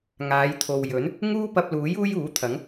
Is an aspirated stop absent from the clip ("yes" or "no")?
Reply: no